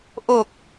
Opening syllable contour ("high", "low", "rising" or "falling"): low